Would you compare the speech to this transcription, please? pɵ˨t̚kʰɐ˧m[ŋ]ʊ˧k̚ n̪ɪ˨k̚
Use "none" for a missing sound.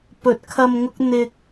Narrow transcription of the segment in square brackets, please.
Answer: ŋ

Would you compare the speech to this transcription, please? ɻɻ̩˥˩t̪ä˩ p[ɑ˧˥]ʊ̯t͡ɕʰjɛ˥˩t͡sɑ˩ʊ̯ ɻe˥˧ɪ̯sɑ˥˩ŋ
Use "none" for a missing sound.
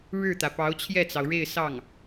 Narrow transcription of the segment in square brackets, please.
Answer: ɑ˧˥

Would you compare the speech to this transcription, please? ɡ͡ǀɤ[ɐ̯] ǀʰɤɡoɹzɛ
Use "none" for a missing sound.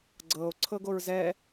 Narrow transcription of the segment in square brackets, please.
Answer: o̯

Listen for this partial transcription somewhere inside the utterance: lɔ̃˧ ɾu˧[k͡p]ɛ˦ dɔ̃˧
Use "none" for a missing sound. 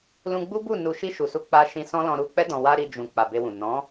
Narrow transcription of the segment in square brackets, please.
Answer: k͡p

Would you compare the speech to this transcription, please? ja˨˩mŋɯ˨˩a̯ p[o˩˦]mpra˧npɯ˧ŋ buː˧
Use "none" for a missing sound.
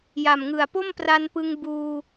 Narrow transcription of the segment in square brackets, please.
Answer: o˥˩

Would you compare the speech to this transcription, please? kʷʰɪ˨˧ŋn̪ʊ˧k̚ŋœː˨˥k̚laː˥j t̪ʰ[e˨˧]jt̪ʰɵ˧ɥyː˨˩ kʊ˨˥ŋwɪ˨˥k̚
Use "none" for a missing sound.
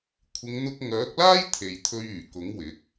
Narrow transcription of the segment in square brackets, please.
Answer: e˨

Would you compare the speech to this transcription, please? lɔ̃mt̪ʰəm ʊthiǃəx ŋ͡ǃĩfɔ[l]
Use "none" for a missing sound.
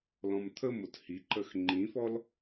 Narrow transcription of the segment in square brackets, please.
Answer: l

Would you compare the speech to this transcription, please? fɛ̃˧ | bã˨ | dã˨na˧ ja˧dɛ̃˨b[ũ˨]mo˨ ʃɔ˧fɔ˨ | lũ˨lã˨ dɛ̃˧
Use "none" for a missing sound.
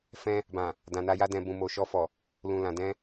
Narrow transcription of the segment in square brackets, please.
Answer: ũ˨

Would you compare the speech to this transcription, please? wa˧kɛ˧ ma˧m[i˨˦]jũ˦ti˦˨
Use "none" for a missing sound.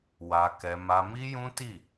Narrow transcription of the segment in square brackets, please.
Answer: i˦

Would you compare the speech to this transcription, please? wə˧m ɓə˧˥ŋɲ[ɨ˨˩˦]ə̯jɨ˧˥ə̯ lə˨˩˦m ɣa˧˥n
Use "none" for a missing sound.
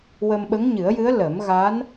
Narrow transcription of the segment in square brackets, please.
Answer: ɨ˨˩˦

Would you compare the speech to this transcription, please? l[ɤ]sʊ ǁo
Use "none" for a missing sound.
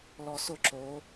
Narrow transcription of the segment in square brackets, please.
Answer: ɔ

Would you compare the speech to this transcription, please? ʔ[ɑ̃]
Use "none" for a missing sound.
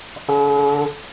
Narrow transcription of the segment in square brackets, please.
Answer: ɑ̃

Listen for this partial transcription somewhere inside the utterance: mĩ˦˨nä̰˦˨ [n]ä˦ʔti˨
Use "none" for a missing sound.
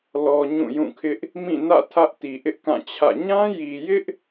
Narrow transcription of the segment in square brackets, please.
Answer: tʰ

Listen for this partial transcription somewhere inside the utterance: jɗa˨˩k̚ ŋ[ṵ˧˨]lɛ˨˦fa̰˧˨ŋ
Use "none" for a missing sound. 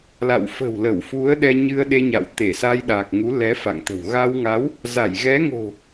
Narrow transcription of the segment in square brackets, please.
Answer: u˨˦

